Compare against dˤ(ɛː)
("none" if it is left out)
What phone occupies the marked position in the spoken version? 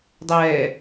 ɛː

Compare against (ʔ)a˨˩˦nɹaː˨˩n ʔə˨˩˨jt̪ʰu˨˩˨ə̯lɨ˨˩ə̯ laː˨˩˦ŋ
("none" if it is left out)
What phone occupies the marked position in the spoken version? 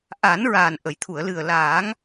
ʔ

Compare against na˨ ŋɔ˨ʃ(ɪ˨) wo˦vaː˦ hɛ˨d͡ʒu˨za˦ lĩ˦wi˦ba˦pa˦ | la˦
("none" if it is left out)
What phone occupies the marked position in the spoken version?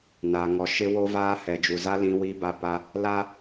ɪ˦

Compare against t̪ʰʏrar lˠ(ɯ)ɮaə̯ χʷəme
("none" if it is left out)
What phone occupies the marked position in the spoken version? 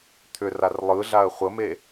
ɯ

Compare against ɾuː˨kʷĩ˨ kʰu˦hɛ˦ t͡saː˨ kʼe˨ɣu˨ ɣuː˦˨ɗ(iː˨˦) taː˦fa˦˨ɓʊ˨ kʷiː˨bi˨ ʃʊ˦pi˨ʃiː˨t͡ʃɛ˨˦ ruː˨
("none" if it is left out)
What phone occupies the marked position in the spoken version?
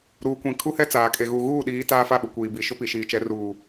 iː˨˦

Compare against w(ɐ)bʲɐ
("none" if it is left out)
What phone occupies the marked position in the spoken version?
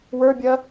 ə˞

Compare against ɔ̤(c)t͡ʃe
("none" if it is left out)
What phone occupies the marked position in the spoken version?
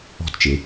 t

